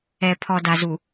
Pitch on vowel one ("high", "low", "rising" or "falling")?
low